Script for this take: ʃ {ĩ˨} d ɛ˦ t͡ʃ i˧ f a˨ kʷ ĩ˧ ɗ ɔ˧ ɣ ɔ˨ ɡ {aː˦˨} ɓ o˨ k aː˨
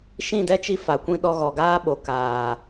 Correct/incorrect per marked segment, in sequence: incorrect, incorrect

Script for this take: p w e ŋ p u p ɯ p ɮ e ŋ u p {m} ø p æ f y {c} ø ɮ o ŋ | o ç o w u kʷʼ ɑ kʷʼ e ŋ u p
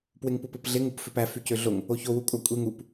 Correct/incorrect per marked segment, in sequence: incorrect, correct

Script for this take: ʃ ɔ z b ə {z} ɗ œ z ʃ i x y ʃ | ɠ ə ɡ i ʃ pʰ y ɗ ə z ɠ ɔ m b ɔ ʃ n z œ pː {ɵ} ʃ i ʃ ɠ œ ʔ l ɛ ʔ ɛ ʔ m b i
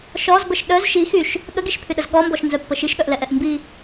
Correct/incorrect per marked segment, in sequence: incorrect, incorrect

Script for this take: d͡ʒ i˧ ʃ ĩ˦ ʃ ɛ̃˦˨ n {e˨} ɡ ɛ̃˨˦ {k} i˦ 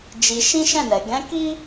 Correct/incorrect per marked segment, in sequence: incorrect, correct

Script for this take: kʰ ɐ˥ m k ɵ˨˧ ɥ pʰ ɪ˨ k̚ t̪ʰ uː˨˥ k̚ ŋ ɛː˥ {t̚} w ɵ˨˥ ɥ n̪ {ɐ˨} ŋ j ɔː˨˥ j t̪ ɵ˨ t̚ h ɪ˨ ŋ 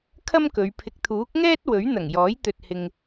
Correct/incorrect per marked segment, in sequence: correct, incorrect

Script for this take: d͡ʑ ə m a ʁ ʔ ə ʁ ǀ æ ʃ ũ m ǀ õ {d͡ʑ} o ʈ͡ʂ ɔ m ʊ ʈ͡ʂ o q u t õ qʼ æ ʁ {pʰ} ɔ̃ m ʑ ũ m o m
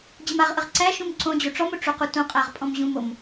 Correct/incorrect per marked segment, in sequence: correct, incorrect

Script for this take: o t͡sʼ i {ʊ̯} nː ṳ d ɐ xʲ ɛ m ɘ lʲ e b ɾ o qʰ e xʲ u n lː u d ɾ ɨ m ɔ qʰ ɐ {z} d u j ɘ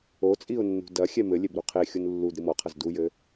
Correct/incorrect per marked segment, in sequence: correct, correct

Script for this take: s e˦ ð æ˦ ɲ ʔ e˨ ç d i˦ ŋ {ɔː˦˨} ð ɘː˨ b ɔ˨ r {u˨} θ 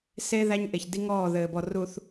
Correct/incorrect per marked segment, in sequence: correct, correct

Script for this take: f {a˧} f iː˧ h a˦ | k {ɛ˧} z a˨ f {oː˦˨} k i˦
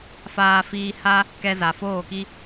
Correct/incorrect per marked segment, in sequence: incorrect, correct, correct

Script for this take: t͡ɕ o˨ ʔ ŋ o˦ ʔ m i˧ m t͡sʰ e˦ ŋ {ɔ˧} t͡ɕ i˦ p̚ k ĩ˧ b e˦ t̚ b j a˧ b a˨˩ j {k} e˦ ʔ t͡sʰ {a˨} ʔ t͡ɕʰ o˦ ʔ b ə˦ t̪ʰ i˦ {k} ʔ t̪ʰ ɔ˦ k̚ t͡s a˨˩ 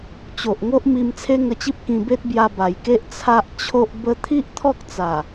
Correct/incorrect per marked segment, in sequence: incorrect, correct, incorrect, incorrect

